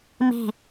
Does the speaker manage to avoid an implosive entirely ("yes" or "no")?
yes